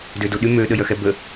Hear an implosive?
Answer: yes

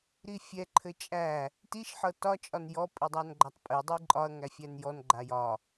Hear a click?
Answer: yes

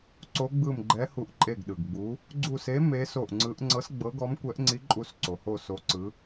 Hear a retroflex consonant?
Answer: no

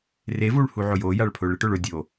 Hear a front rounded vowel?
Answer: no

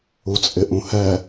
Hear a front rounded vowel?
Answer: no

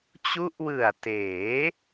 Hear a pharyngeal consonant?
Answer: no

